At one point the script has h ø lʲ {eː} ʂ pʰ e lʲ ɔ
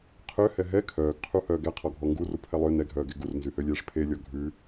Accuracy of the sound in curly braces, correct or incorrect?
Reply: correct